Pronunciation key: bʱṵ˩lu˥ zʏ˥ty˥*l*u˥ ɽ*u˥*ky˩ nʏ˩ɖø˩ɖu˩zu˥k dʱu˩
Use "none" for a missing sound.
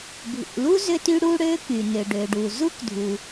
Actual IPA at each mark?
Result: ɽ, ø˥

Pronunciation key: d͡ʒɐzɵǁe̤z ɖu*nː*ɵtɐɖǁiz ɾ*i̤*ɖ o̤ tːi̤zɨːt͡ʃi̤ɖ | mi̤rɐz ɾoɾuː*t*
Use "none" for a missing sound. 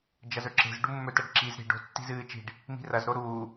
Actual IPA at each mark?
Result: mː, i̤, none

